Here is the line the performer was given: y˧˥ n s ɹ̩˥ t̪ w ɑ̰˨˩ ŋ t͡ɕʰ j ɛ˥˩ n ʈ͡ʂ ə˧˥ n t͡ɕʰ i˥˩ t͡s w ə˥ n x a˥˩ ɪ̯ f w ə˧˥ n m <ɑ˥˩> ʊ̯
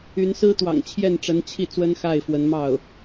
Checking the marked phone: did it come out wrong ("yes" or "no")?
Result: no